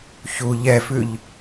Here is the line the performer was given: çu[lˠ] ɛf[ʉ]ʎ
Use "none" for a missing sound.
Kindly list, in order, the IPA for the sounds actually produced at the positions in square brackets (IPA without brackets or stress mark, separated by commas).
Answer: ʎ, ʉ